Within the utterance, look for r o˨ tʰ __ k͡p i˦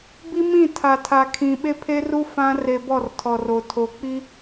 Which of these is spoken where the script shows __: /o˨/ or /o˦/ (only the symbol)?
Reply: o˨